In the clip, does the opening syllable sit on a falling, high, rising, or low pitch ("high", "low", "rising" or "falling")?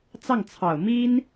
falling